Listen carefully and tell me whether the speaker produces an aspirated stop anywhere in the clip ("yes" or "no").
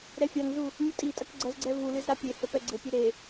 no